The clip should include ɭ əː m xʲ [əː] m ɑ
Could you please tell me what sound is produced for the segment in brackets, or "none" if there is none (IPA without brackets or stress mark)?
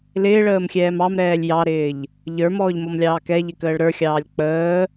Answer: ɛː